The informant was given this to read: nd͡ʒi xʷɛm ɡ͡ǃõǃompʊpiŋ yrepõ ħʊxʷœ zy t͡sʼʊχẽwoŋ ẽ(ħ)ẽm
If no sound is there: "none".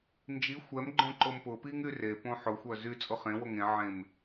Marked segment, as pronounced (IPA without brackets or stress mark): ʕ